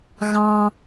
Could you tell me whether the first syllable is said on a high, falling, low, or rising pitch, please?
high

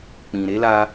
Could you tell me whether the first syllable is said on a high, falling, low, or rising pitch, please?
low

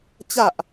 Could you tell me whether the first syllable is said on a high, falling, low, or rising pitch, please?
low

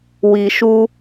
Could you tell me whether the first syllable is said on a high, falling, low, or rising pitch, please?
low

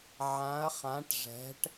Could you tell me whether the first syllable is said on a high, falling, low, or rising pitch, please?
rising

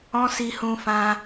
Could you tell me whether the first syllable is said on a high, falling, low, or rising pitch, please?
high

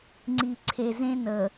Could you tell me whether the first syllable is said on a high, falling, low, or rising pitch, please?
low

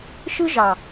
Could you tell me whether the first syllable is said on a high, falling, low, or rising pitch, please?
high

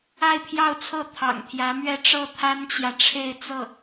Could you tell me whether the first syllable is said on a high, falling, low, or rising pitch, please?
falling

